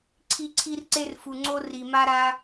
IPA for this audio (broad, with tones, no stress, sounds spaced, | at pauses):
ǀʰ i˧ ǀʰ i˧ r ǀ e˧ r f u˩ ŋ͡ǀ o˧ r i˩ m a˧ ɾ a˧